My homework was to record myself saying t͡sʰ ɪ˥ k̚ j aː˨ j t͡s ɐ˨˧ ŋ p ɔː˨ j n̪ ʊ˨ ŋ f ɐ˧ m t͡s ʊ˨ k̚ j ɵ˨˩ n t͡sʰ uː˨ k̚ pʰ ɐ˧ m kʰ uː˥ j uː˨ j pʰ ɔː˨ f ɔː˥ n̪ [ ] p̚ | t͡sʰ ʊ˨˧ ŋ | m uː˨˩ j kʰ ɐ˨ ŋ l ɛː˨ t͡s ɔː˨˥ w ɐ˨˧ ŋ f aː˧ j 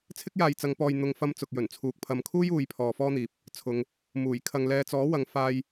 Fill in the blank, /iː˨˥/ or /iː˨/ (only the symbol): iː˨˥